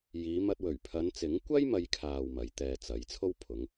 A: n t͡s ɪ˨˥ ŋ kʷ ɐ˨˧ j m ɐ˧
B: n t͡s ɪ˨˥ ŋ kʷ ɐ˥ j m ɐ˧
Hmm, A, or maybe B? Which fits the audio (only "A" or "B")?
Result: B